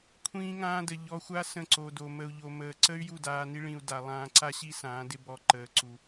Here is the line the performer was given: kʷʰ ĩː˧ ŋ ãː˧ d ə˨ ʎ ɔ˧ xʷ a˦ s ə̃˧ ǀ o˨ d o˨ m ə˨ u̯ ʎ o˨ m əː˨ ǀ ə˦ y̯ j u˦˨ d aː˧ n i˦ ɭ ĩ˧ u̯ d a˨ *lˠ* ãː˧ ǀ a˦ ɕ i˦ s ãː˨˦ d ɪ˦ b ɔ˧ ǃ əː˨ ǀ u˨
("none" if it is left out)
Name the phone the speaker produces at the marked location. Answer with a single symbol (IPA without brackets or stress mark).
lˠ